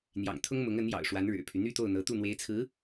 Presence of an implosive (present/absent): absent